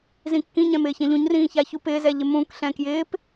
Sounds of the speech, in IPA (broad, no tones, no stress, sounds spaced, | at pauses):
z ĩ kː ĩ ɲ ɛ̃ m ɪː ç ɛ̃ ʎ ũ ɲ r ĩː ç a ç u p ɪː z ɛ ʎ ɪ m ũ k ɬ ɛ̃ k j ɪː p